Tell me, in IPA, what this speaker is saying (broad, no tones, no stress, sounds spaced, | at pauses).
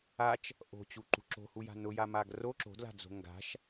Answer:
a t͡ʃ | ʔ o̤ t͡ɕ u ǃ ṳ ǁ o̤ h u j a̤ n ʊ j a m a ɡ r o ǁ o̤ d l a̤ d͡z o̤ ŋ ɡ a̤ ʃ